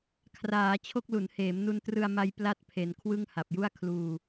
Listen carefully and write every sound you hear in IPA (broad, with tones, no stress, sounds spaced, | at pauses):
kʰ r aː˩˦ t͡ɕʰ o˥˩ k̚ l u˩˦ n h eː˩˦ m n u˧ n t r ɯ˧ a̯ m a˧ j p l a˥˩ t̚ pʰ e˩˦ n kʰ w ɯ˥˩ ŋ h a˨˩ p̚ j u˥˩ a̯ kʰ l uː˧